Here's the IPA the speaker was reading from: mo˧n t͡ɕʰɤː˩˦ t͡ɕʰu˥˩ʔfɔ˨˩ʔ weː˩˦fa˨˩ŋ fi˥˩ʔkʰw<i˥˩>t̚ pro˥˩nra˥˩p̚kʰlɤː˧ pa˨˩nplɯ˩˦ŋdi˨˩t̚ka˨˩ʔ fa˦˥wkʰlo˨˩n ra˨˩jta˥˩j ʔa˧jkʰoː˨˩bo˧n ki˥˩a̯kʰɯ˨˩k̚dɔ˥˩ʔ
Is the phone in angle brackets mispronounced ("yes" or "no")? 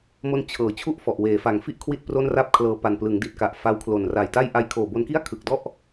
no